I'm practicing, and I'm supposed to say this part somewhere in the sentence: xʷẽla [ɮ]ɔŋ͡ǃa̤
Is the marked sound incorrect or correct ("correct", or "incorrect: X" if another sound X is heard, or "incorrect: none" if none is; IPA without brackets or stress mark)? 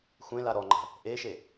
incorrect: ɾ